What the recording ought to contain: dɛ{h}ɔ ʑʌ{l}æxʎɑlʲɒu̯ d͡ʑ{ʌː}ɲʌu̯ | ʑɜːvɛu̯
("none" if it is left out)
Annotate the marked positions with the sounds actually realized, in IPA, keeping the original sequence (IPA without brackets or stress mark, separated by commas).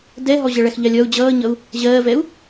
ɦ, ɭ, ʌː